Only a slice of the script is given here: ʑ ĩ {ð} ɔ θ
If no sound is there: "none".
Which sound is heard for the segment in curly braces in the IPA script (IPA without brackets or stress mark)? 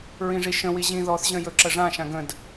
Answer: ð